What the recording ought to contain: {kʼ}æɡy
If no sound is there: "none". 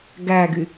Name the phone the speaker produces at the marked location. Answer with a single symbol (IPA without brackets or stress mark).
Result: ɡ